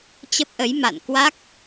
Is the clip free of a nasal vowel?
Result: yes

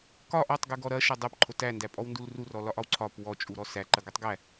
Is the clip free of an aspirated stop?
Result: no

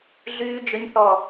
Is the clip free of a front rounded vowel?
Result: no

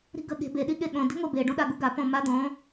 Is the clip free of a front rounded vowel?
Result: yes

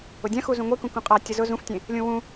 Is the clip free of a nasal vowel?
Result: no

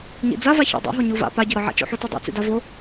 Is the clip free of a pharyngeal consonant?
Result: no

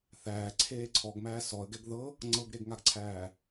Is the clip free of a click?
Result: no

